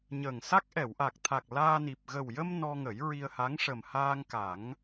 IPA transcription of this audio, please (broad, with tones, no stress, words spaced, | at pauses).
ɲəː˨˩ŋsa˦˥k̚ ʔɛ˨˩˨wʔa˨˩k̚t̪ʰa˨˩k̚ laː˧ni˨˩p̚ ɣə˨˩wjə˧m nɔ˧ ŋə˨˩˦jɹi˧ə̯ha˧˥ŋ ʂə˨˩mhaː˧ŋ ka˨˩˦ŋ